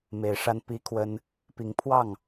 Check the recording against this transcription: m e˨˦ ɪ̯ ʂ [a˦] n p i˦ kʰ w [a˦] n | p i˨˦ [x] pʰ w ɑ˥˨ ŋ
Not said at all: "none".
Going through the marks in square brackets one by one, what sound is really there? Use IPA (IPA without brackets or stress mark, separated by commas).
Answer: a˦, ə˦, ŋ